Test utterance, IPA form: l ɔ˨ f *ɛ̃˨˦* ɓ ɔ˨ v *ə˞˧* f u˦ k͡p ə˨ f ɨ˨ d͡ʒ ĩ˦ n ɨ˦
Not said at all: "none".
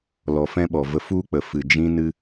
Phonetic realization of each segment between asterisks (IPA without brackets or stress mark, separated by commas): ɛ̃˦, ə˧